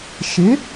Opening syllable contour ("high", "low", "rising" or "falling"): rising